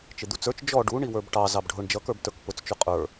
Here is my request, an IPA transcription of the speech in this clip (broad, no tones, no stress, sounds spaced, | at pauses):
t͡ʃ ɪ d̪ u t͡s ə˞ t͡ʃ d͡ʒ ɔ ɖ u ɳ i w ə˞ b ʈ ɑ z ɑ b ɖʱ ʊ ɳ d͡ʒ ʌ k ə˞ b t ə˞ k p ʊ t͡s t͡ʃ ʊ qʼ ə˞